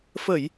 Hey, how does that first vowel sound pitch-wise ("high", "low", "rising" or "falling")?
low